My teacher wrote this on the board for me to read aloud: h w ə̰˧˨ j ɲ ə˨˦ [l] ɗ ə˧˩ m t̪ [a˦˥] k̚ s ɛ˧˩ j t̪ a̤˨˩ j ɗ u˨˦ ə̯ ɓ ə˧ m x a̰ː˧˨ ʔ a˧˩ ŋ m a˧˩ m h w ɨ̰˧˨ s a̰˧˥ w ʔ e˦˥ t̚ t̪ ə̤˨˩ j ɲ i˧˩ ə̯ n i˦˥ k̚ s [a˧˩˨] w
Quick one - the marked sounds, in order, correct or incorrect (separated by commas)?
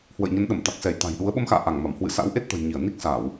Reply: incorrect, incorrect, correct